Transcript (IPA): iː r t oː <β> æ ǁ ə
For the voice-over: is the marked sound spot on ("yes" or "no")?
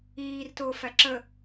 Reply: no